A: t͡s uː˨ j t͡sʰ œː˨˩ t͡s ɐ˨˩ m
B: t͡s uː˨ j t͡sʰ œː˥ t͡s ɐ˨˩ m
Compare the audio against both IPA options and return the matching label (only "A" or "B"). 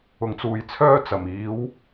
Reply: B